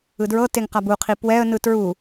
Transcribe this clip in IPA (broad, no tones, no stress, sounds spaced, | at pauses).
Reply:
ɯ d ɹ ɤ t e ŋ q a b u qʰ i p w ɛ ə̯ n ɯ t ɹ u